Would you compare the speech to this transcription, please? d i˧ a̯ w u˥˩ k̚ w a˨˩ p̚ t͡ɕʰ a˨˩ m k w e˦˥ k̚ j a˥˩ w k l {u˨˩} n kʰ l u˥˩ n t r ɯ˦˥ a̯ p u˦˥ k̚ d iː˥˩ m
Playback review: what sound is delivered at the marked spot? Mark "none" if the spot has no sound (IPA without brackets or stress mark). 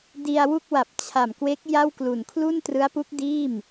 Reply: u˨˩